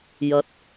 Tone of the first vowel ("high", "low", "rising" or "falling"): low